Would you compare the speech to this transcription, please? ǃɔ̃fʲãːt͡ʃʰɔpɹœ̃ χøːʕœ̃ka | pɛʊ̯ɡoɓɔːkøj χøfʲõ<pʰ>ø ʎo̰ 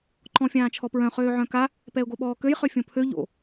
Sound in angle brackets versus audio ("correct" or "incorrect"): correct